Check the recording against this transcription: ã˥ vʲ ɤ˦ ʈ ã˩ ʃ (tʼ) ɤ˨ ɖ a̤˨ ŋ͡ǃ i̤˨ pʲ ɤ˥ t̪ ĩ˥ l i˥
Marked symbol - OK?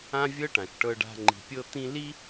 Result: no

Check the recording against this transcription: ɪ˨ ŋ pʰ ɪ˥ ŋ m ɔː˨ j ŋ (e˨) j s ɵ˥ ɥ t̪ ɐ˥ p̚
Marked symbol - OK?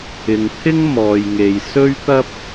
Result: yes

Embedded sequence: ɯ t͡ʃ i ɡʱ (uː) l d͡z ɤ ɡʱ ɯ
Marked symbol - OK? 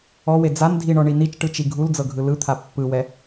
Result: no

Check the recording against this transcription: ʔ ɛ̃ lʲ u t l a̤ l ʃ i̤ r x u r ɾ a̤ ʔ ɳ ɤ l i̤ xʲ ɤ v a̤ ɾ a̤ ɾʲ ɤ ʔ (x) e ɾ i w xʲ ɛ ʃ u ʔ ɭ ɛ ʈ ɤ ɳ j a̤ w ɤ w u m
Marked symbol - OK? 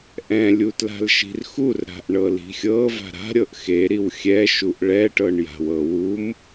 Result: yes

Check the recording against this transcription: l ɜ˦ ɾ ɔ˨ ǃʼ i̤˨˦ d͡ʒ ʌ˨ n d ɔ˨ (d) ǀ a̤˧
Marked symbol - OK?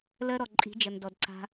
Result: yes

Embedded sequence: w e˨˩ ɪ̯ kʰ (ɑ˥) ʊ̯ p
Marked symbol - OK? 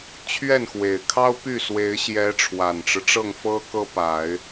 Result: yes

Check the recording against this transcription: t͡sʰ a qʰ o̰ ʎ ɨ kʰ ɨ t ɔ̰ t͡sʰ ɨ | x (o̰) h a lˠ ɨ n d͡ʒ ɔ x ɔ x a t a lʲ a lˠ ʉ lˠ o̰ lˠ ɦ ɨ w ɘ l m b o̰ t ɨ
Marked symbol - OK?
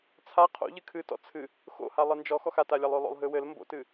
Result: yes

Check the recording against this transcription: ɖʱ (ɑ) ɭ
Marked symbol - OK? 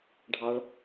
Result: yes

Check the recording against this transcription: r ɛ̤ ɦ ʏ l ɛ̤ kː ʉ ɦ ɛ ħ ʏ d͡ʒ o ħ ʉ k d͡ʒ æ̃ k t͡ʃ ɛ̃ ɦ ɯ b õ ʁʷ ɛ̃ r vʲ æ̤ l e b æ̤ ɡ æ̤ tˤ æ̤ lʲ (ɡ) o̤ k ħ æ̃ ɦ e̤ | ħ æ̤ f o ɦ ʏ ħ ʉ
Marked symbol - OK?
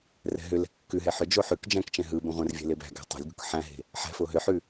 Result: yes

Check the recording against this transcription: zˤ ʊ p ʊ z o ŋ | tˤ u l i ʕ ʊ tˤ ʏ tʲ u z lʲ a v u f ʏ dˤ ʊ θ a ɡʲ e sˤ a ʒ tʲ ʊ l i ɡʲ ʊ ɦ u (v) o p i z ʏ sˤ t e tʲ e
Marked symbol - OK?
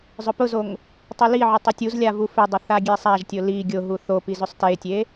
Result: no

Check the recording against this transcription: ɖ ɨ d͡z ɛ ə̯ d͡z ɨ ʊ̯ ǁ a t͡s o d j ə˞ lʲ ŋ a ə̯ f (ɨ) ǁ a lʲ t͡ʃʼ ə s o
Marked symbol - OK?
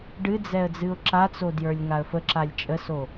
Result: no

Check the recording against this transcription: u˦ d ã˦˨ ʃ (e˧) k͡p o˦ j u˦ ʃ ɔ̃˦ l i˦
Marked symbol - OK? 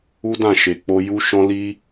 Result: yes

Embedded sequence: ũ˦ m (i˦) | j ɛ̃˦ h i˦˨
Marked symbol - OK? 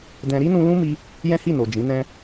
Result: yes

